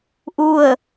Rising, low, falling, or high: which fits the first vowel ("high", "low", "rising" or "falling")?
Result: falling